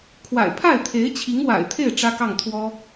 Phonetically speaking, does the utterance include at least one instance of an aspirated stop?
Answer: yes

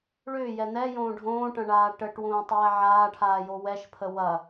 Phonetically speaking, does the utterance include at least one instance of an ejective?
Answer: no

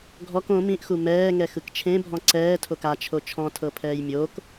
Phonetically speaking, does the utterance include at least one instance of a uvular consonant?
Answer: no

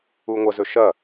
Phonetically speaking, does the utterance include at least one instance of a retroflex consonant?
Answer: no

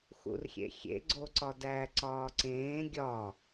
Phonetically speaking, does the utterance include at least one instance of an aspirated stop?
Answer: no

